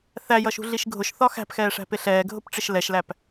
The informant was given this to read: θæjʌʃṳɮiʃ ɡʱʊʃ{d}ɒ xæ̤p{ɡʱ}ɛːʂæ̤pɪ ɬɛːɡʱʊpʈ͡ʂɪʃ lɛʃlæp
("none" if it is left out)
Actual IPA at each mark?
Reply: θ, x

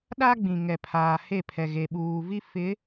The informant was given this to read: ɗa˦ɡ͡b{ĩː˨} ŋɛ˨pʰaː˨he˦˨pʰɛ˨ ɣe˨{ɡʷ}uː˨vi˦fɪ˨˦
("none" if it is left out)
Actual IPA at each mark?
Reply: ĩ˨, ɓ

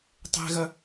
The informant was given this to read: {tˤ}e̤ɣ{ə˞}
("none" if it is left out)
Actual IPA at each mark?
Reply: tˤ, ɐ

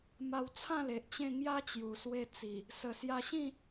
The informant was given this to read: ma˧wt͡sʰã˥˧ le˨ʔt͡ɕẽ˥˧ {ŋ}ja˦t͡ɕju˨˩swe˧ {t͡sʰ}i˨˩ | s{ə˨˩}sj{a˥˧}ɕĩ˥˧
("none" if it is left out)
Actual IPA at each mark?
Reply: ŋ, t͡s, ə˨˩, a˧

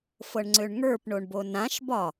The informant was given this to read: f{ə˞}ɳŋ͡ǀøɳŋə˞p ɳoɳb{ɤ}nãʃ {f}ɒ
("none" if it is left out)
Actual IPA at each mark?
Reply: ɤ, o, b

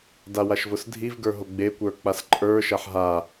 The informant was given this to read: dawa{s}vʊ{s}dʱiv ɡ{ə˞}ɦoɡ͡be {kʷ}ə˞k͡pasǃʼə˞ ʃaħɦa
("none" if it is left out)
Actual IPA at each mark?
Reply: ʃ, s, ə˞, kʷ

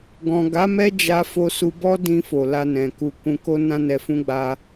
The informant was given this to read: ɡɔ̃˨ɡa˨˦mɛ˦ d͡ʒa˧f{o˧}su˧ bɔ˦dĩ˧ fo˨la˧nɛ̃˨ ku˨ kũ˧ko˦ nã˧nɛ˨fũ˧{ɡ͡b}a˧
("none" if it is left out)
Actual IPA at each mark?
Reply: o˧, ɡ͡b

